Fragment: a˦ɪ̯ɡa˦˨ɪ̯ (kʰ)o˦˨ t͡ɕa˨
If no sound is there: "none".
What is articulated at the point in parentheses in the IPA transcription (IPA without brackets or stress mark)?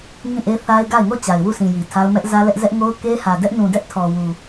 ŋ